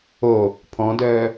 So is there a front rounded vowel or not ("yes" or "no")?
yes